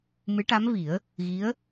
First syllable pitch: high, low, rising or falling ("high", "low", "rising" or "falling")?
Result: rising